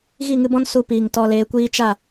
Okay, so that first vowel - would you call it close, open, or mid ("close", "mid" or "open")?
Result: close